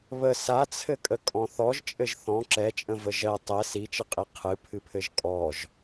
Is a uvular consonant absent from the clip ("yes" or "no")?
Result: no